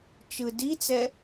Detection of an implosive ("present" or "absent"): absent